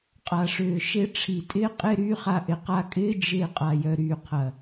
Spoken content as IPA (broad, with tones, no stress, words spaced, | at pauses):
qʼa˨ʂʏː˨ ʃe˧ʈ͡ʂʰi˨tʼɪː˦ qʼɪː˦ɾyː˦χa˧ ʔɪ˨qa˧kʼɪː˦ d͡ʒɪː˧ qʼa˨jœ˨ ɾyː˨qʰɐ˨